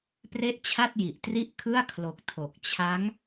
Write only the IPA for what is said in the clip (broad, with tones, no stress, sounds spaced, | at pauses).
p r e˥˩ ʔ t͡ɕʰ a˥˩ t̚ j i˨˩ ʔ t r i˥˩ ʔ kʰ ɯ˥˩ a̯ kʰ l o˨˩ k̚ tʰ o˨˩ k̚ t͡ɕʰ a˦˥ ŋ